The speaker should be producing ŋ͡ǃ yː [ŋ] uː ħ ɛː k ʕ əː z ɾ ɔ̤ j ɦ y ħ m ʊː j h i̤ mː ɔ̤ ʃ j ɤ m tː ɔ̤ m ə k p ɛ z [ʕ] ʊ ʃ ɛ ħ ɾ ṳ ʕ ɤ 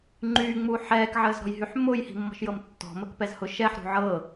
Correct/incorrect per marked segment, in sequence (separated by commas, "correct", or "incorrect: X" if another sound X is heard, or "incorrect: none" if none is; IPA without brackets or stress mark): incorrect: ŋ͡m, incorrect: h